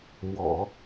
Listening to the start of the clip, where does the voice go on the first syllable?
low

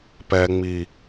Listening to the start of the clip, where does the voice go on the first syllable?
low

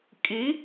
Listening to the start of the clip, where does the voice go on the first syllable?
rising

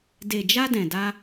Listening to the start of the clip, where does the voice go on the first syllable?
low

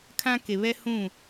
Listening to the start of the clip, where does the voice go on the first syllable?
high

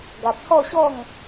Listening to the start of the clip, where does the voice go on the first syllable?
low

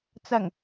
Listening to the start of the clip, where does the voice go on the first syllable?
low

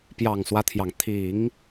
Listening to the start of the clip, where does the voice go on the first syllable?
low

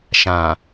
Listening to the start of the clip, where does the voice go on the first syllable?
low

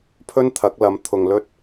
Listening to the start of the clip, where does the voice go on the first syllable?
high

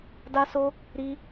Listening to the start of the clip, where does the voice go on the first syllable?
high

